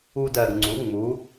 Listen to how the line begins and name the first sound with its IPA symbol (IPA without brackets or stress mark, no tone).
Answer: u